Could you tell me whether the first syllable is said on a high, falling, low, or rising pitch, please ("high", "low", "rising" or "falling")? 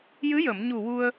rising